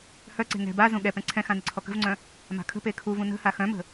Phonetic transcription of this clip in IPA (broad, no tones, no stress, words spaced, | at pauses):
hœǀe̤ ŋɛ̤ bazũ ɠɛpɛ̃ ǀʰɛ̃xã nɪǀʰɔkə̤vŋ͡ǀœ̃ | ma̤kʰə̤pe kʰuvũ nə̤ha xœ̃mə̤